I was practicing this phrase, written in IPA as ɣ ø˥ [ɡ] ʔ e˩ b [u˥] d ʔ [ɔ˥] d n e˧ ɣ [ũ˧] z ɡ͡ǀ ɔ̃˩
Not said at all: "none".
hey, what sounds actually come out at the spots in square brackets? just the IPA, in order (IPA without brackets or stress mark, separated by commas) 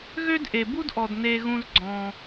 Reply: d, u˥, ɔ˩, ũ˧